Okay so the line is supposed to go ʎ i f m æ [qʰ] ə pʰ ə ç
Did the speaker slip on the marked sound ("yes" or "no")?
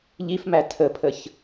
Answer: yes